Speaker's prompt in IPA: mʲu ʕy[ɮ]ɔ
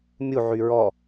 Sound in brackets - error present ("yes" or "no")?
yes